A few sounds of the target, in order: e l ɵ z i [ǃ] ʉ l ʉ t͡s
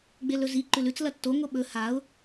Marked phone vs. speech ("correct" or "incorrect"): correct